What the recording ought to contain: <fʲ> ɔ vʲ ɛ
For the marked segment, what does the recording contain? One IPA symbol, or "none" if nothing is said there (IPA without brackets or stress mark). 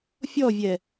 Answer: fʲ